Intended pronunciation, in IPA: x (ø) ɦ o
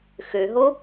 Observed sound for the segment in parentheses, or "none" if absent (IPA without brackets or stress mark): ø